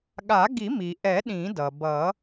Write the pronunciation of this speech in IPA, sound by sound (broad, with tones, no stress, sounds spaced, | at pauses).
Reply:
ɠ a˨˩˦ ɡ i˨˩˦ m i˩ ʔ ɛ˨˩˦ ɗ ĩ˨˩˦ d ʌ˩ b ʌ˨˩˦